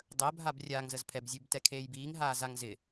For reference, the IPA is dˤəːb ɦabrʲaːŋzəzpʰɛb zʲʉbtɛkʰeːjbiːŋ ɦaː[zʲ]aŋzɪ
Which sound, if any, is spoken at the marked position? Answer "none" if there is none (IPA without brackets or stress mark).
z